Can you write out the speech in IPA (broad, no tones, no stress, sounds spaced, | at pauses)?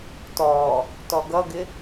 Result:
t ɔ | t ɔ ɡ ʌ ɡ ɪ